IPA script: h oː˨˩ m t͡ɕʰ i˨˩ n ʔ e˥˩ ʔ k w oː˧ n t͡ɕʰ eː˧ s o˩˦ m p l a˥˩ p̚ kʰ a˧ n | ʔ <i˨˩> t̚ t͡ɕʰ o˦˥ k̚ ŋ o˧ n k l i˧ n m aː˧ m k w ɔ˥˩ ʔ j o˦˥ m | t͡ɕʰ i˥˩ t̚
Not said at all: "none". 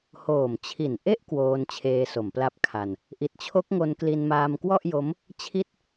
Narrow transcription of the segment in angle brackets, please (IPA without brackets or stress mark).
i˨˩